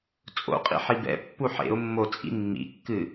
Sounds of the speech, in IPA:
t͡sʼ o̰ qʼ ḭ ħ i b ɛ̰ pː u ħ ḛ ʊ̯ mː o t͡sʼ ḭ mː ḭ kː ɨ

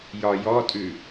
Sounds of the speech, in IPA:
j ɒ j ɔ tʼ ʉ

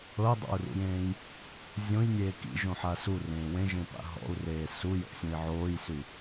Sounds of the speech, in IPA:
ɤ i̯ dˤ a̰ u̯ r ṵ j ẽː j | zʲ õ j nʲ eː k ḭ ʒ õ ħ a s u r ẽː w ẽ ʒ ẽ p a̰ ɦ ɔ̰ u̯ r eː s u j ɔ̰ sʲ õ i̯ ʕ oː j s y

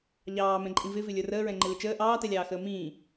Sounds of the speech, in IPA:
ʎ ɑː m ɛ̃ ǃʼ ĩ v ɪ v ɪ lʲ ə˞ r əː ɹ ɛ̃ ŋ͡ǃ ɪ l ɪ t͡ʃ əː ʔ ɑː t ɛ lʲ ɑː x əː m ĩː

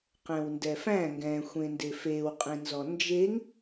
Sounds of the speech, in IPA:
q ɛ̃ w n d ɛ f æ̃ ŋ ɡ ɛ̃ xʷ ẽ n d e f e w qʼ ẽ n z ɔ n d͡ʒ e ŋ

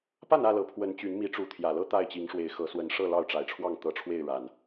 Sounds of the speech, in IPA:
p a˥˨ n ä˥˨ l ɤ˨˩ pʰ w ə˨˦ n t͡ɕ y˨˦ n m i˨˦ ʈ͡ʂ u˨˦ t̪ʰ j ä˨˩ l ɤ˦ t̪ a˥˨ ɪ̯ t͡ɕ i˨˦ ŋ ʂ w e˨˦ ɪ̯ x ɤ˨˦ s w ə˨˦ n ʂ ɤ˥˨ l ɑ˥˨ ʊ̯ ʈ͡ʂ a˨˩ ɪ̯ ʈ͡ʂʰ w ɑ˥˨ ŋ t̪ ɤ˨˦ ʈ͡ʂʰ w e˥˨ ɪ̯ ɻ a˨˩ n

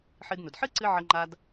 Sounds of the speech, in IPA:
ħ ɨ˧ d n ʊ˨ d ħ ɨ˦ ǀ ɨ˧ ʕ ə˧ ŋ͡ǃ a˧ d

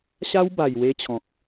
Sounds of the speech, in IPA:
ɕ a˦ w b a˨˩ j w e˧ t͡ɕʰ ɔ̃˨ k̚

